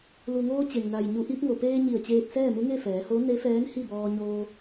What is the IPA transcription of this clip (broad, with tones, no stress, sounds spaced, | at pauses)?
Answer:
l u˩ ŋ oː˧ t͡ɕ e˩ ŋ n a˩ j ɲ u˩ ʔ i˧ p̚ ŋ o˩ p eː˧ ɲ i˧˩ ə̯ t͡ɕ eː˧ p̚ s ɛː˥˨ m u˧˥ ŋ e˥˨ f ɛː˩˧ h o˧˥ n e˧˥ f ɛː˧˥ n h i˥˨ b ɔː˧ ɲ oː˧